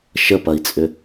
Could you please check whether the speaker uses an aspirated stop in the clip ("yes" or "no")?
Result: no